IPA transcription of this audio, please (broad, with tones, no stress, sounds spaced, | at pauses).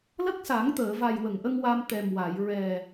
l ə˦˥ k̚ s a˨˩˦ ŋ t̪ əː˨˩˨ v a˨˩ j w ə˨˩˨ ŋ ʔ ə˧ ŋ w a˧ m t̪ ɛ˨˩ m w a˨˩˨ j ɹ ɛ˨˩